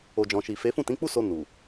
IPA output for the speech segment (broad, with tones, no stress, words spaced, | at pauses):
o˨d͡ʒɔ̃˨ʃi˨fe˨˦ fũ˦˨tĩ˨˦k͡pu˦ so˧nu˨